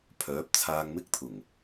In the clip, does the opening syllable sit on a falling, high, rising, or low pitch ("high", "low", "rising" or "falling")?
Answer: rising